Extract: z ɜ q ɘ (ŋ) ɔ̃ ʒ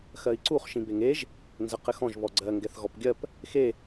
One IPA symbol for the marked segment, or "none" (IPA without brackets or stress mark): x